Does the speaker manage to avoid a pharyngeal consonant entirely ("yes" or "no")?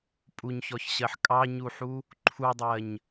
no